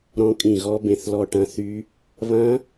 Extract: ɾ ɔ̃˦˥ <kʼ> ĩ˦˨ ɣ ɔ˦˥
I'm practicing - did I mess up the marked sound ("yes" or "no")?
no